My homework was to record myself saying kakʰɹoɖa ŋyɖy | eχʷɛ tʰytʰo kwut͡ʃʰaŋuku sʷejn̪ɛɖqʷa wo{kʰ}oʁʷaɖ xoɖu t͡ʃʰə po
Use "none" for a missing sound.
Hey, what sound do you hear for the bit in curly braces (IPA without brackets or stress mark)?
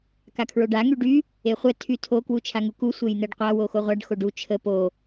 x